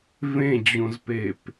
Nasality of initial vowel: nasal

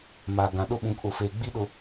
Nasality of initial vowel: oral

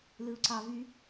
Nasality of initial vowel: oral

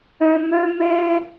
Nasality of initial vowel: nasal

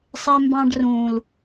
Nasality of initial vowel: oral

